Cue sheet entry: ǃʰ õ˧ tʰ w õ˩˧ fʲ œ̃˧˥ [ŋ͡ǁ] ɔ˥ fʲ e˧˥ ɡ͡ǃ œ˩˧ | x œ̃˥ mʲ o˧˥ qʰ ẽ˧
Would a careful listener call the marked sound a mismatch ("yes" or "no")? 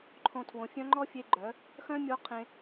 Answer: yes